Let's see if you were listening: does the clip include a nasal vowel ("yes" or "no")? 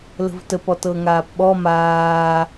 no